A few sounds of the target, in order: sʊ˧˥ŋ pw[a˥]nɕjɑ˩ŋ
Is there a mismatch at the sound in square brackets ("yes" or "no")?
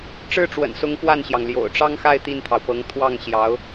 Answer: yes